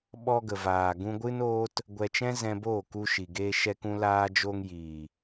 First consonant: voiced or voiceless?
voiced